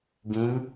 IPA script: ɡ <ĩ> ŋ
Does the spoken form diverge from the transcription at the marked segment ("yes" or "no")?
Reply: no